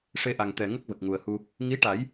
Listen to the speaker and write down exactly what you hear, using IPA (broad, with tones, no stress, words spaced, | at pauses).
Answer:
ʂe˧ʔa˨˩ŋ t̪ɛ˨˩ ŋə˦˥k̚və˨˩k̚ ŋu˨˩ə̯hu˧ | ŋi˧˥ʈa˨˩˦j